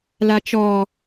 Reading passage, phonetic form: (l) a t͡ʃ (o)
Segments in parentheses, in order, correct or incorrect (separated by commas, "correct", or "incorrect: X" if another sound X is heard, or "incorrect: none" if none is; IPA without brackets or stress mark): correct, incorrect: ɔ